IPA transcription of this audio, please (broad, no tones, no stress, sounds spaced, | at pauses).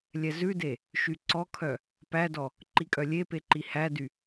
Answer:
lʲ ɛ z ʉ d e | ʃ y ǀ ɔ kʰ œ | p æ d ɔ | ǃ i kʼ œ lʲ e p e ǃ i h æ d y